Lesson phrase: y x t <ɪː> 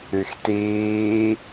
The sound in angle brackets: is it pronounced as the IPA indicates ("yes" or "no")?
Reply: no